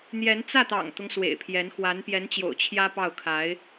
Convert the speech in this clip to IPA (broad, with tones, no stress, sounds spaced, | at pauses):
n̪ j ɛ˧˥ n t͡s ä˥˩ t̪ ɑ̰˨˩ ŋ t̪ ʊ˦ ŋ s w ḛ˨˩ ɪ̯ pʰ j ɛ˧˥ n x w a˧˥ n p j ɛ˧˥ n t͡ɕ j o̰˨˩ ʊ̯ t͡ɕʰ j ä˥ p ɑ˥˩ ʊ̯ kʰ a˧˥ ɪ̯